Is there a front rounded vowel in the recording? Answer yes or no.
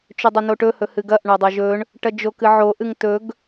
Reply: no